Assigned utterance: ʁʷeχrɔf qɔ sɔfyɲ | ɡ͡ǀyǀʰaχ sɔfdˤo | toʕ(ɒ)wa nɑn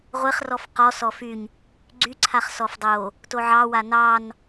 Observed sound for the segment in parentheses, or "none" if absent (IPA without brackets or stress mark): ɑ